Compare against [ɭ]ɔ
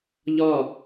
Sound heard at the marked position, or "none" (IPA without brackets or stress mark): ʎ